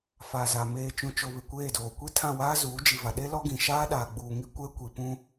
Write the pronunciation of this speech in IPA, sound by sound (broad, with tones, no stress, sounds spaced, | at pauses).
f a˨ z a˨ m eː˨ t͡ʃ ũ˨ t͡ʃ o˨ β ɪ˨ kʷ eː˦˨ d oː˨ kʷ i˦ tʰ ã˦˨ w aː˦ z uː˨˦ d͡ʒ i˨ v a˨ ɗ e˦ l ɔ˦ ɡ ĩ˨ ʃ aː˦ ɗ aː˨ ɡ͡b uː˨ ŋ i˦ kʷ ɛ˦ kʷ i˨ p ũ˦